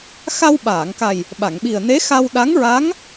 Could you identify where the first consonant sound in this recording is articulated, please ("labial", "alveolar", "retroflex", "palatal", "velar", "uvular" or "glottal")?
velar